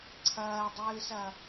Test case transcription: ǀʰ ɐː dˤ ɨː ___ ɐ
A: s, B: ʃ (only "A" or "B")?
A